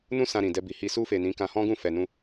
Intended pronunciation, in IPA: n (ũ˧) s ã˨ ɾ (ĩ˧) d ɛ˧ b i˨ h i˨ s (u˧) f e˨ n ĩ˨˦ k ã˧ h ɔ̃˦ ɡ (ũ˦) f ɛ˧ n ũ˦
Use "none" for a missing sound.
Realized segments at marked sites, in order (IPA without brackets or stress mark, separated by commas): ũ˧, ĩ˨, u˧, ũ˦˨